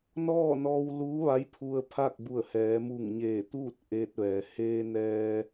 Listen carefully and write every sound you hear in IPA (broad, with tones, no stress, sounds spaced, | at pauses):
n ɔː˥˨ n ɔː˧ w l uː˧˥ ʋ a˧˥ j pʰ u˧ ə̯ pʰ a˥˨ k̚ b u˧˩ ə̯ h ɛː˩˧ m u˧˩ ŋ ɲ eː˧˩ t̪ uː˥˨ t̚ ʔ eː˧ t̚ ʋ ɛː˩ h eː˧ n ɛː˧